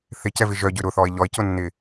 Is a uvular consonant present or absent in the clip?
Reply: absent